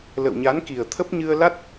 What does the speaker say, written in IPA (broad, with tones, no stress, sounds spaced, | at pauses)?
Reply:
l ə̰˧˨ w ɲ a˨˦ n k i˨˩ ə̯ t̪ʰ ə˦˥ p̚ ɲ ɨ˧ ə̯ l a˦˥ t̚